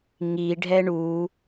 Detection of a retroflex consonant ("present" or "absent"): present